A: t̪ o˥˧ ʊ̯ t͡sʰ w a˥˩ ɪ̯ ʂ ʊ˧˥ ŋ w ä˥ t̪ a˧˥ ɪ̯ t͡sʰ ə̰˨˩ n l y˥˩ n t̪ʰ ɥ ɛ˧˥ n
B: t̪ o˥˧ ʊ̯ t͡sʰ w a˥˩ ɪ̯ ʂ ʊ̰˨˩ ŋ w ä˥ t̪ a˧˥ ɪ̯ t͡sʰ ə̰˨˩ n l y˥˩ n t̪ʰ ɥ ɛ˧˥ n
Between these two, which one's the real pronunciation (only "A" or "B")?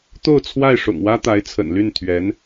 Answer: B